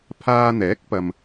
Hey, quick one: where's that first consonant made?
lips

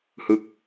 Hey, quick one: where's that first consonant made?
throat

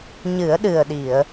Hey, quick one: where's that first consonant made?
palate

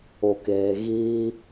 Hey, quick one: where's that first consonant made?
velum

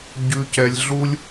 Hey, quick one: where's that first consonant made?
palate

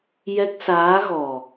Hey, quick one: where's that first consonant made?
palate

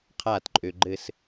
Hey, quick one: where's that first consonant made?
uvula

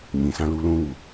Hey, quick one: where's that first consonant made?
palate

